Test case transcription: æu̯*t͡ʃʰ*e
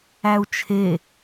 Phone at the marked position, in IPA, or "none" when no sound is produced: t͡ʃʰ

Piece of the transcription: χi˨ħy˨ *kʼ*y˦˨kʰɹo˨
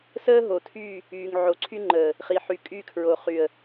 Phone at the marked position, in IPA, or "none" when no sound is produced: kʼ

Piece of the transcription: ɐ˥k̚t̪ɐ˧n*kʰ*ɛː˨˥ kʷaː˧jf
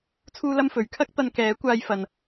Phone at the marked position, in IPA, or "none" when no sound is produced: k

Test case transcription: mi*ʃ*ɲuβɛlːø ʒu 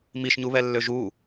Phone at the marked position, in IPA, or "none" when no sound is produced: ʃ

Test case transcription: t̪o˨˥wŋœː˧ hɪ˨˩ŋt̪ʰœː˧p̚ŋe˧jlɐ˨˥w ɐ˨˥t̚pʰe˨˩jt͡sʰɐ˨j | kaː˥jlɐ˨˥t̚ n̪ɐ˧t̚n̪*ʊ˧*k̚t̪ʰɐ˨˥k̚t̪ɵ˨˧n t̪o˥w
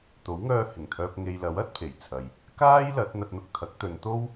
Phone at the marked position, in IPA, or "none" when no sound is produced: ʊ˧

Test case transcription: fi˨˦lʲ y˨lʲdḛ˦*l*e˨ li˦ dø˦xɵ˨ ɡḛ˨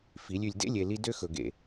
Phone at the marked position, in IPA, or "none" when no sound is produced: lʲ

